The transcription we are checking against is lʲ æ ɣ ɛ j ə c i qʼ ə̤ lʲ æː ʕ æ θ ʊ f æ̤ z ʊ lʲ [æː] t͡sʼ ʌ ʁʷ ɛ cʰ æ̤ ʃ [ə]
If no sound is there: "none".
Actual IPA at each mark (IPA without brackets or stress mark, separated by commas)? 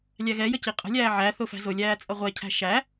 æː, æ